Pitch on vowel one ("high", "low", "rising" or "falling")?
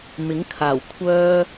rising